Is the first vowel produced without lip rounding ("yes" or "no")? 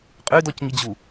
no